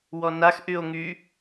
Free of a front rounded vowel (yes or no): no